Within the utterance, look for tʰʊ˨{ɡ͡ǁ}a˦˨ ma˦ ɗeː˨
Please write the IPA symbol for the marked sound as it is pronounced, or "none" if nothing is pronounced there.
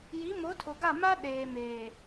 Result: ɡ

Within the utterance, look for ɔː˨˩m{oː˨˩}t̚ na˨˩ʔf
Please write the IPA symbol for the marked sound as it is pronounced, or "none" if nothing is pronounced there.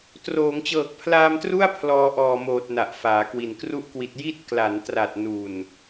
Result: oː˨˩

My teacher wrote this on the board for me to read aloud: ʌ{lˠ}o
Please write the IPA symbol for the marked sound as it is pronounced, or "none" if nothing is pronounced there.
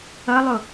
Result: lˠ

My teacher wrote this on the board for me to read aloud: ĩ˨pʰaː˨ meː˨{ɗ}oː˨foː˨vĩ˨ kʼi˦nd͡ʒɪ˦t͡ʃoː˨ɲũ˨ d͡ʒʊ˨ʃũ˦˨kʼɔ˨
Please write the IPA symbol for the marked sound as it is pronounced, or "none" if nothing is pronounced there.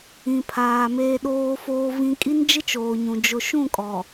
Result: ɗ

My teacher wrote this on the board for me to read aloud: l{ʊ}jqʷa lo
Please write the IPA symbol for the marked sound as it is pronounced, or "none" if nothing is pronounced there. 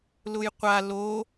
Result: ʊ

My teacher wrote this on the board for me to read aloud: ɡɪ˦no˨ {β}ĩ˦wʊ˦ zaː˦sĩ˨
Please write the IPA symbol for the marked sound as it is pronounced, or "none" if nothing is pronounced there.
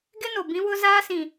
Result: b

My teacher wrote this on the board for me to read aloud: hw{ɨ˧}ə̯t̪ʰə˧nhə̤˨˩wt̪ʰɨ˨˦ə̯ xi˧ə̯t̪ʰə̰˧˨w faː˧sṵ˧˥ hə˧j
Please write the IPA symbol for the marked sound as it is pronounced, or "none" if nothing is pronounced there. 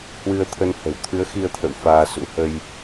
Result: ɨ˧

